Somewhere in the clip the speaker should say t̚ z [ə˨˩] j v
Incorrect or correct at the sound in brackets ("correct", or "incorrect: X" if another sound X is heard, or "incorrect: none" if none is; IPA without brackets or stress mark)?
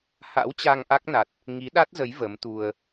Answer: incorrect: ə˨˦